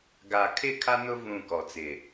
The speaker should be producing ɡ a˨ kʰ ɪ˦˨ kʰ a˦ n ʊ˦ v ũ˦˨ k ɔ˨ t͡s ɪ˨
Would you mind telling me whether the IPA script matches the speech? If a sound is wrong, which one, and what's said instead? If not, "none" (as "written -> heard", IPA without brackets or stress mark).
none